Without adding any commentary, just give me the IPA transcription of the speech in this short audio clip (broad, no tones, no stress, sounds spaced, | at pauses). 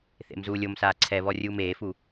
θ ḛ m z uː lʲ o m s aː ǀʰ ɛ β ɔ rʲ uː m eː f u